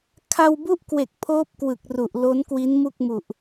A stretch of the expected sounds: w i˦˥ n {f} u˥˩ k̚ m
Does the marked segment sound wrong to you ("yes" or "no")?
yes